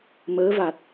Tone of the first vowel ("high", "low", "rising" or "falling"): rising